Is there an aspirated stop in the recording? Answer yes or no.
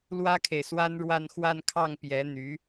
yes